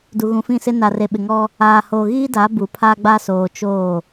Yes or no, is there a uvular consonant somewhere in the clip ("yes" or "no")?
no